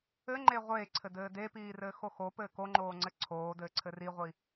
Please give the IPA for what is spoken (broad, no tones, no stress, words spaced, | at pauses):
ɘŋ͡ǃe ʁʷeːǀʰɘdɘː depiːrɘːxo xopɘː koŋ͡ǃoːŋ͡ǀɘ ǀʰoːdɘːǀʰɘ riʁʷi